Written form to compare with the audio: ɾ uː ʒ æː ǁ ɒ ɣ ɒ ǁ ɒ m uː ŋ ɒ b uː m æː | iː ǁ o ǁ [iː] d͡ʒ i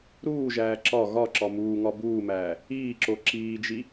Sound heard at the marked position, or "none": iː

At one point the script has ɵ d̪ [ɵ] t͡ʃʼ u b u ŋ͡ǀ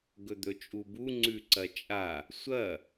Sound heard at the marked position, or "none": ɵ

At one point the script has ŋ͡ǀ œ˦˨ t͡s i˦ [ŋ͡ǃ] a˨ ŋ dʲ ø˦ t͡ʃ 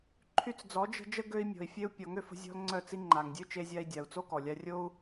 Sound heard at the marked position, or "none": ŋ͡ǃ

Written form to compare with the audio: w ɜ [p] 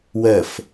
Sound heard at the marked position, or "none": f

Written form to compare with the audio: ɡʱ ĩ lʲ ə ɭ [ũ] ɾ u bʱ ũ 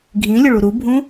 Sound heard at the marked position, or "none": u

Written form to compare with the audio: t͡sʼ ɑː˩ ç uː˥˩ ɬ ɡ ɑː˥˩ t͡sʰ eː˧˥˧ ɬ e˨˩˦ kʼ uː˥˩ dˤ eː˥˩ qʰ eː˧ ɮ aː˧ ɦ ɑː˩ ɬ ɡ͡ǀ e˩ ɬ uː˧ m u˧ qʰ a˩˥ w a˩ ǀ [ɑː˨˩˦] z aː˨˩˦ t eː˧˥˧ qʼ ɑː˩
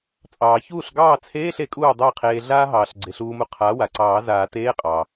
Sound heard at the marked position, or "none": ɑː˨˩˦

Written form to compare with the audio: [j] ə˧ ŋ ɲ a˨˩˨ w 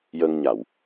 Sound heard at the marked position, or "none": j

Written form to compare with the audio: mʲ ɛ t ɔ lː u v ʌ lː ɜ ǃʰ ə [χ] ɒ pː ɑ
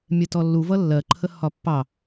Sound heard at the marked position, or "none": h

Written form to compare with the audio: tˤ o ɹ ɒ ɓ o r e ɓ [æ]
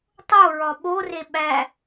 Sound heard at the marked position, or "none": æ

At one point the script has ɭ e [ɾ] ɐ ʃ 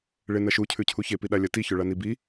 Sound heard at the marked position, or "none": n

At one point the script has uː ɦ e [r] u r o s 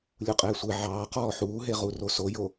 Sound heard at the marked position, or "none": ʁ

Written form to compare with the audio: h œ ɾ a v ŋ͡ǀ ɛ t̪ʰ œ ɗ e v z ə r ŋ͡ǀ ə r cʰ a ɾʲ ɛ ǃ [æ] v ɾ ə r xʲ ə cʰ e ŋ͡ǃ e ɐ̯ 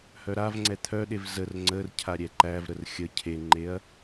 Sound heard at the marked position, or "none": æ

